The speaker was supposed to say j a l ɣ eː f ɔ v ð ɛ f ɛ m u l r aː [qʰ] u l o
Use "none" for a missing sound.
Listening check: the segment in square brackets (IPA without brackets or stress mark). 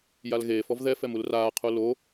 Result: qʰ